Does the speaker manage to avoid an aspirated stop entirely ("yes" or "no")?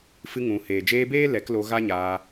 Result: yes